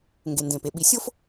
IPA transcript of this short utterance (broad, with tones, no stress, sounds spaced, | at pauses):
ŋ ɡ e˩ n d ẽ˩ p e˩ ɓ i˨ sʲ o˥ f